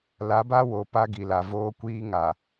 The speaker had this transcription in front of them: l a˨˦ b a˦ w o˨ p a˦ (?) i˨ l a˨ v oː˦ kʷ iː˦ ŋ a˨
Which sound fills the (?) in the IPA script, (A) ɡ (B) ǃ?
A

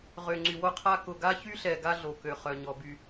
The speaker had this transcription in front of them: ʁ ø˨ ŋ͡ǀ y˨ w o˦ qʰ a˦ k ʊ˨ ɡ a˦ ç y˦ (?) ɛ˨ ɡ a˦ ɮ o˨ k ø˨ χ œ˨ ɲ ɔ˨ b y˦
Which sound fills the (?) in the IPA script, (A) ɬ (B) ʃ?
A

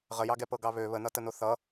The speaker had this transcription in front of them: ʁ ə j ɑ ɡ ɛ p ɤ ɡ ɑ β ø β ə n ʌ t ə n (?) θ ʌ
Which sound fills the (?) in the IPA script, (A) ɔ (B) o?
B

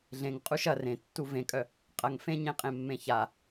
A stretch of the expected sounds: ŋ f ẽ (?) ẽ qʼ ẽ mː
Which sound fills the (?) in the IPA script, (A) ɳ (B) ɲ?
B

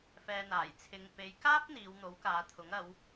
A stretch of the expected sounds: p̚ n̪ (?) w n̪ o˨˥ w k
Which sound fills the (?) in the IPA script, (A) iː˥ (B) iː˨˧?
B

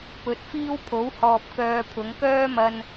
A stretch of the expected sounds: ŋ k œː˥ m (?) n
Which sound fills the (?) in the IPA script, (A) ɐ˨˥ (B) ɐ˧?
B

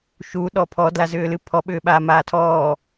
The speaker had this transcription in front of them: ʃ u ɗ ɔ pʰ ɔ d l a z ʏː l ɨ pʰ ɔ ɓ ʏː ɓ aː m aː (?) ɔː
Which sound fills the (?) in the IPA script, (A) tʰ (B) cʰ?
A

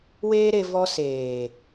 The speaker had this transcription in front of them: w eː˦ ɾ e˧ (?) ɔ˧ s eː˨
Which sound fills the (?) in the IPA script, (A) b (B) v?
B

